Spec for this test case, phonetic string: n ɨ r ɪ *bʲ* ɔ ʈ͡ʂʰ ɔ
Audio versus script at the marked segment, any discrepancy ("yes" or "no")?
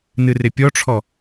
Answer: yes